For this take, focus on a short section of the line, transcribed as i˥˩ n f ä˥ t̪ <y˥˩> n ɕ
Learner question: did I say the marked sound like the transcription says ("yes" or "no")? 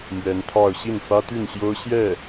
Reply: yes